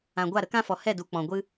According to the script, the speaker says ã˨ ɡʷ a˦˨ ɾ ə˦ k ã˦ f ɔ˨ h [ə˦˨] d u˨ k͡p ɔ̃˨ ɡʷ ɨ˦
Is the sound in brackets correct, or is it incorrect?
incorrect